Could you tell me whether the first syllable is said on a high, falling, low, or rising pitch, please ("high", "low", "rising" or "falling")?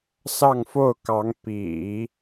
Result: falling